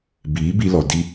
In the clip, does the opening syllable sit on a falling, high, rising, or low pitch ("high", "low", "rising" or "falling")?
rising